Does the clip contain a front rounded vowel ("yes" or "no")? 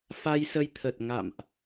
no